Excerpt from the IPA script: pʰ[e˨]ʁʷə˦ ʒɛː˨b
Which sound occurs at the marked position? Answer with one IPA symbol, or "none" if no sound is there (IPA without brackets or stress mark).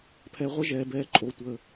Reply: ɛ˨